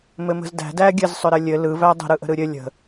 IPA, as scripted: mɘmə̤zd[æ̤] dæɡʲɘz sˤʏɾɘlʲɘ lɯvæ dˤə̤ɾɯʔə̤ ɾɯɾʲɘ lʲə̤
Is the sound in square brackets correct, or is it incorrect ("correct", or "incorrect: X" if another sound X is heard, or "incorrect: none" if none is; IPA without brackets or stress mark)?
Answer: correct